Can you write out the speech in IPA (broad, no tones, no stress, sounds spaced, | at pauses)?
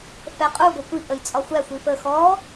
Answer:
f ɛ qʼ u ɡʷ ɛ kʷ i ʔ ə j t͡sʼ ɒ xʷ æ xʷ i f ə x ɔ